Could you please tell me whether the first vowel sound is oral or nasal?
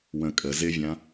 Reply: nasal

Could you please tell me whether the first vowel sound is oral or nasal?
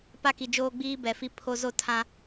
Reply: oral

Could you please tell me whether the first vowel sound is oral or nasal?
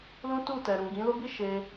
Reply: nasal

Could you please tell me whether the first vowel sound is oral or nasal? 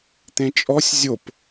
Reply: nasal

